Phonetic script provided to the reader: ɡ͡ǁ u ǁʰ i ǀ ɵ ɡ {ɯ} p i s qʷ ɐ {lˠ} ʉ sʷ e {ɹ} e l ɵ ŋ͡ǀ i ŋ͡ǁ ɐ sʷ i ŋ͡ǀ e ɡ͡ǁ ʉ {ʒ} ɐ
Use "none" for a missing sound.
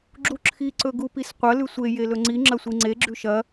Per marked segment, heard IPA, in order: u, l, j, ʃ

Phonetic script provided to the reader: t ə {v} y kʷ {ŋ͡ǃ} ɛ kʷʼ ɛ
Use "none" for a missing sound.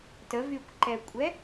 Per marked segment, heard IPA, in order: v, ǃ

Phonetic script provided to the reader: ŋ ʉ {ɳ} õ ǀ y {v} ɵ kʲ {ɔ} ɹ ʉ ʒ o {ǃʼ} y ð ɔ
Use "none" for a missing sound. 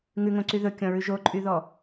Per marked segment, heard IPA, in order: ŋ, ð, ɔ̃, ǃʼ

